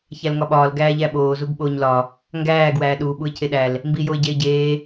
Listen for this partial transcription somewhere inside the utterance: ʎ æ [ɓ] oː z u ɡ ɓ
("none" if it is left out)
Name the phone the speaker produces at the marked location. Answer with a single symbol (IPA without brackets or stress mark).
ɓ